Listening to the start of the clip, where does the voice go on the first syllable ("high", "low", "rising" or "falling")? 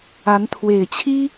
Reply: rising